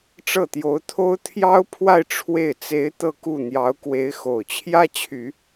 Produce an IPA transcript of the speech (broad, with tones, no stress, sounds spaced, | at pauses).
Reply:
ʈ͡ʂ ɤ˥˩ t̪ j o˧˥ ʊ̯ t̪ʰ o˥ ʊ̯ t̪ʰ j ɑ˥ ʊ̯ pʰ w a˥˧ ɪ̯ ʈ͡ʂʰ w e˥˩ ɪ̯ t͡s e˧˥ ɪ̯ t̪ ɤ˥˧ k u˥˩ n̪ j ɑ˧˥ ʊ̯ k w e˧˥ ɪ̯ x o˨˩ ʊ̯ t͡ɕʰ j ä˥ t͡ɕʰ y˨˩˦